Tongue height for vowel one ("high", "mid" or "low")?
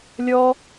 mid